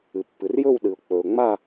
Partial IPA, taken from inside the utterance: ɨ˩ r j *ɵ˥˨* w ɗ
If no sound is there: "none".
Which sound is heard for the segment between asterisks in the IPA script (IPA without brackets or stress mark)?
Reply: ɵ˥˨